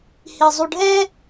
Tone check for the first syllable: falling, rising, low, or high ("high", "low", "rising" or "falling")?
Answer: low